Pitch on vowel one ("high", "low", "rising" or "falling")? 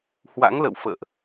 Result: rising